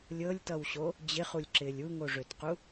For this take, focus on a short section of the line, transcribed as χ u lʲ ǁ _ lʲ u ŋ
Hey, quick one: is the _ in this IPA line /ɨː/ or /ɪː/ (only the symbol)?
ɪː